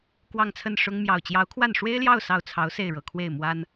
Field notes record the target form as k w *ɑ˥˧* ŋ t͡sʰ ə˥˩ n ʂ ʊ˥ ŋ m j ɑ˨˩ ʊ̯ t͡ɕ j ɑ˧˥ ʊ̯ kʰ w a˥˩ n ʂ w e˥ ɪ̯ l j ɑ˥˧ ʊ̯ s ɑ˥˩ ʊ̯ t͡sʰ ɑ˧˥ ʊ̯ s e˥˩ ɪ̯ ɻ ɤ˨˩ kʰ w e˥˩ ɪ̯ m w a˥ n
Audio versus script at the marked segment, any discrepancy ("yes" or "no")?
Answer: no